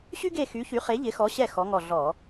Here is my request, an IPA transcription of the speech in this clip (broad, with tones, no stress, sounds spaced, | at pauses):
ɕ y˥ ɡ e˦˨ x y˨˥ ç y˨˥ χ e˨˥ ʎ ɪ˨˥ x ɔ˨˥ ɕ ɛ˦˨ x ɔ˨˥ ŋ ɔ˦˨ ɮ ɔ˧˩˧